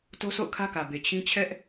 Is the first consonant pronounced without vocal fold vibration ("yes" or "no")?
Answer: yes